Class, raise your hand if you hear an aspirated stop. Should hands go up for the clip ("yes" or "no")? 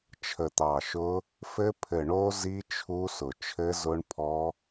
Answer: yes